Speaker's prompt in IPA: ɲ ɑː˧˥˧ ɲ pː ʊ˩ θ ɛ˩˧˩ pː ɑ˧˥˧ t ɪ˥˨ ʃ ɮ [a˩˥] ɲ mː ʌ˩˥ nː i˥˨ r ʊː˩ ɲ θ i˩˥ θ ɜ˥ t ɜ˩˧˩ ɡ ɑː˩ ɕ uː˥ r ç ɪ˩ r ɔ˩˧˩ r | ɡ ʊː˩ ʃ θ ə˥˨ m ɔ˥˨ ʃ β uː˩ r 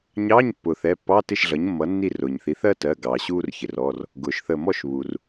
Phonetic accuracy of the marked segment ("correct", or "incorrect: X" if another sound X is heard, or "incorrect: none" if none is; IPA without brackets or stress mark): incorrect: ʌ˩˥